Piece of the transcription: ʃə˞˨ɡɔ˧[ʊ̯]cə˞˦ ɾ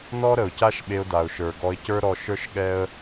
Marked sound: incorrect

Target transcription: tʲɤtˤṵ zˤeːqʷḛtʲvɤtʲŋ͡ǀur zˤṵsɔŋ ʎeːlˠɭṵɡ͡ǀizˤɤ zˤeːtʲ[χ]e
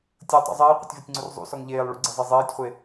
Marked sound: incorrect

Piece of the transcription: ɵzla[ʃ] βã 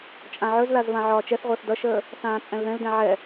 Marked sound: incorrect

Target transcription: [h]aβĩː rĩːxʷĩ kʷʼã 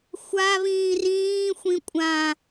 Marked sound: incorrect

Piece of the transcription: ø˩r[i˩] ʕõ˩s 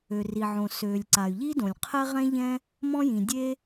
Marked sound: correct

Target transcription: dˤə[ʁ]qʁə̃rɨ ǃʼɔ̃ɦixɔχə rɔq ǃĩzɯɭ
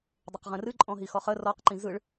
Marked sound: incorrect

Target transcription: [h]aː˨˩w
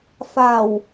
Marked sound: incorrect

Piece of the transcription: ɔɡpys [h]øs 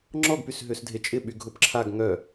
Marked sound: incorrect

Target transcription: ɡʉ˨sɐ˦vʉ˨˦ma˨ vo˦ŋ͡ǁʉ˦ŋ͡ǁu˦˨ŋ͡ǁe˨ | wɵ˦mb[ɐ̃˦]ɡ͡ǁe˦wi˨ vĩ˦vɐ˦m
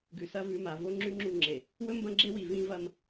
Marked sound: correct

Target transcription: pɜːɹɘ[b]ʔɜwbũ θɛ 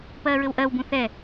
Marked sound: incorrect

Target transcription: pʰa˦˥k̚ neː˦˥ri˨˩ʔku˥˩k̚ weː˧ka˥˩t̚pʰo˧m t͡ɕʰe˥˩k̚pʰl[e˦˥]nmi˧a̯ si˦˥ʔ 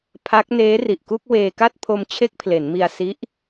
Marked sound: incorrect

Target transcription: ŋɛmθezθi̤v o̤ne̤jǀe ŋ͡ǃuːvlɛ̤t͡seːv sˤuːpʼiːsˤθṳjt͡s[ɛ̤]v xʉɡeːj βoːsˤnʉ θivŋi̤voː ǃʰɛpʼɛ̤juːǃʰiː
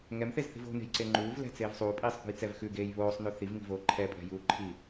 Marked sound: incorrect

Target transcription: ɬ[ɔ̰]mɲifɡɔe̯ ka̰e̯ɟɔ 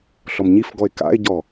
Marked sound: incorrect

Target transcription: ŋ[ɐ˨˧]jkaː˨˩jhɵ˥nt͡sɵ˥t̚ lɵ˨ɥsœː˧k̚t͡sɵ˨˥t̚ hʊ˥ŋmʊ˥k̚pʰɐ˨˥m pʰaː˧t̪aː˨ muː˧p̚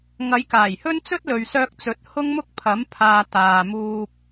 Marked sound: correct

